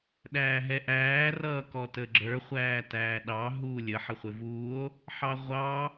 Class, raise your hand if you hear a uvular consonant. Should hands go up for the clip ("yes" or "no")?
yes